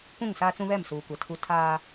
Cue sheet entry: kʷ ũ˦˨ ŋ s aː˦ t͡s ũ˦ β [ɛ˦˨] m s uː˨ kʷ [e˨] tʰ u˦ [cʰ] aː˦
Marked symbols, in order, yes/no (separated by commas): yes, no, no